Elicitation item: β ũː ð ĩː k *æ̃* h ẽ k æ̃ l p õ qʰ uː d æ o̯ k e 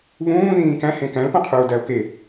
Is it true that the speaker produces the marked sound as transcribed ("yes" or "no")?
yes